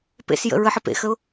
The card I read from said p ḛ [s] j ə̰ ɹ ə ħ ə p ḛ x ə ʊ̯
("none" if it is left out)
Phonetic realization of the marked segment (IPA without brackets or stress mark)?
s